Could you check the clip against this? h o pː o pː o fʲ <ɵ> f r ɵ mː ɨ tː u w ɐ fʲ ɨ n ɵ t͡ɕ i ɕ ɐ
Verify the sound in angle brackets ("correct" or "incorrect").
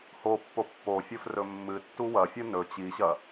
correct